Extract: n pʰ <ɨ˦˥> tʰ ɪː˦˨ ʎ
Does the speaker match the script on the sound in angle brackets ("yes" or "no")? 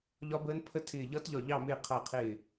no